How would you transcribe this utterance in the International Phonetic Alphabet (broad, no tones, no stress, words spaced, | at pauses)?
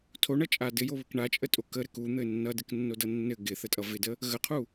tʰoɳʌt͡ʃʼa dɘjoβɘk ɳat͡ʃʼətʼo kəɾɘk un̪ɘ nːʌdɘknːodʌ nːɘ ɡɪθətʼʌ vɪdə | ɣəqʰu